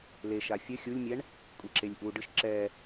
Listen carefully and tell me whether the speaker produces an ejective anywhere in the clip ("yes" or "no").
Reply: yes